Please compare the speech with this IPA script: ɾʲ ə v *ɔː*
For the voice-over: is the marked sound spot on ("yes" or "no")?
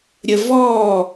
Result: yes